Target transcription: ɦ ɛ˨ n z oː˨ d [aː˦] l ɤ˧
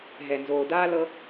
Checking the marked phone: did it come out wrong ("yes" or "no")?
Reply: no